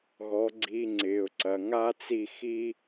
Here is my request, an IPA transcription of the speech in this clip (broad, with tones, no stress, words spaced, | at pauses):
ɣɔ˨˦ɡ͡ǀi˧ŋ͡ǀɪː˨ʊ̯ǀɐ˨ ŋa˦t͡si˦˨ xi˦